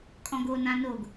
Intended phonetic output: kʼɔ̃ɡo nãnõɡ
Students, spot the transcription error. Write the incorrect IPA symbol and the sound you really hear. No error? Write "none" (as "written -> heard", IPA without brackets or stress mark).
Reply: õ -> o